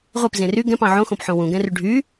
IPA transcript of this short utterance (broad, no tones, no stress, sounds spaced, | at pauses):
ʁʷ e p z ẽ r y ɡ ɛ̃ p ɑ̃ ʕ õ x õ p ħ õ w ũ ɡ ɛ̃ r y ɖʱ y